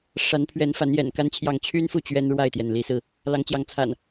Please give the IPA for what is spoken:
ʂ a˨˦ n pʰ ɥ ɛ˨˦ n f a˨˦ n j ɛ̰˨˩ n k a˦ n t͡ɕʰ j ɑ˥˨ ŋ t͡ɕʰ y˦ n f u˥˨ t͡ɕ ɥ ɛ˦ n ɻ w a˥˨ ɪ̯ t̪ j ɛ˩ n l i˨˦ s ɹ̩˧ | l ɑ˨˦ ŋ t͡ɕ j ɑ˨˦ ŋ t͡sʰ a̰˨˩ n

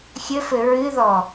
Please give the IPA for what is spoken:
xʲ ɘ f ɘ ɹ ɨ ð ɔ

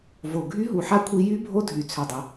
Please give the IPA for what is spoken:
v o˨˩ ɡʱ y˦˥ ɦ u˨˩ ħ a˦˥ kʷʰ i˦˥ j y˦˥ bʱ o˦˥ dʱ y˨˩ t͡sʰ ø˨˩ dˤ ə˨˩

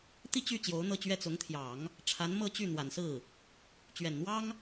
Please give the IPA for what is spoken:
t̪ i˥˧ t͡ɕ y˥˩ t͡ɕ j o˧˥ ʊ̯ n̪ ɤ˥˧ t͡ɕ ɥ ɛ˥˩ t͡s ʊ˧˥ ŋ t̪ʰ j ɑ˨˩˦ ŋ | ʈ͡ʂʰ a˧˥ n m ɤ˥˧ t͡ɕ y˥˩ n̪ w a˨˩ n s ɹ̩˥˩ | t͡ɕ ɥ ɛ˨˩ n n̪ w ɑ˥ ŋ

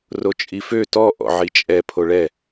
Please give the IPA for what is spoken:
r o t͡ʃʼ i f ø t ɔ ʔ ɔ̰ ʕ i t͡ʃʼ ɛ pʰ o ɭ ɛ

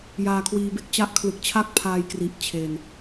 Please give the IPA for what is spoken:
j aː˧ kʰ w iː˧ b e˥˩ k̚ t͡ɕ a˦˥ ʔ kʰ l ɯ˨˩ k̚ t͡ɕʰ a˥˩ k̚ pʰ aː˧ j k r i˨˩ ʔ t͡ɕʰ e˧ n

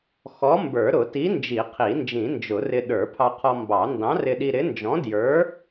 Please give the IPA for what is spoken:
x ɔ˨˥ m b ə˞˨˩˦ ɾ ʊ˨˩˦ t i˨˥ n d͡ʒ i˨˩˦ qʰ i˨˩˦ n d͡ʒ ĩ˨˩˦ n d͡ʒ ʊ˨˩˦ r ɪ˧ ɗ ə˞˨˩˦ pʰ ɑ˧ qʰ ɔ˧ m b ɑ˨˩˦ n d ɑ̃˨˥ r ɪ˧ ɗ i˧ ɾ ɪ˨˥ n d͡ʒ ɔ̃˨˥ d j ə˞˨˥

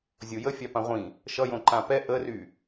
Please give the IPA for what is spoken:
zʲ o j ə fʲ ɑ p ã ʁʷ ĩ | ʃ ʌ j õ ǃ ã p ɛ ʔ ə r y

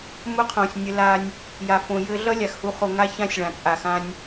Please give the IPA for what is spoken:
m ʊ˦ qʰ õ˨ sʲ nʲ ɘ˧ l a˧ nʲ | j a˨ f õ˨ j ɘ˧ ɮ ʌ˦ lʲ a˨ x h u˧ χ o˧ ŋ a˦ ç ã˦ sʲ ɭ ã˨ t͡sʼ a˨ x ã˧ nʲ

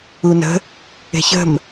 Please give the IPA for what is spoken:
u n ə̤ | e̤ ç ə̤ m

